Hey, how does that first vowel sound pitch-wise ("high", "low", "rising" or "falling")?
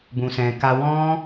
low